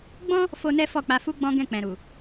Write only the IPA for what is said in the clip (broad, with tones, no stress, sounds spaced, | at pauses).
ɡ͡b ɔ̃˦ | f o˦ n ɛ˦ f ɔ˦˨ k͡p a˧ f u˦ ɡ͡b ɔ̃˦ ɡ ɛ̃˦˨ k͡p ɛ̃˨ ɾ u˨